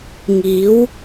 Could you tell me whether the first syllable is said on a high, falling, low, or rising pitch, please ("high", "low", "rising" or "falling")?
rising